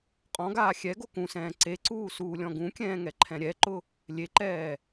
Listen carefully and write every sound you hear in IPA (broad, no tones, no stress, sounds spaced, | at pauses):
qʼ ɔ̃ ɡ aː xʲ ɛ ɡ o k ũ s ɛ̃ː ǀ e ǀ uː s uː lʲ ɔ̃ ɡ ũ kʲ ɛ̃ː ŋ ɛ ǃʰ ɛ̃ ɾʲ ɛ ǃ ʊ | lʲ e ǃ ɛː